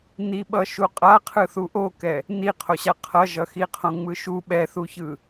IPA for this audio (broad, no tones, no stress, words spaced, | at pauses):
niɓʌʃu qʼaqʰɯθu ʔokɛ | niqʰoɕa qʰʌʒʌxiqʰõ ŋ͡mɯʃu ɓɛθuçɯ